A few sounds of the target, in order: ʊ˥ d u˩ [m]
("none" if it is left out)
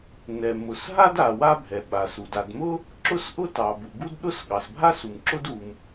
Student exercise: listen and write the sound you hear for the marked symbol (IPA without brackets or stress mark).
m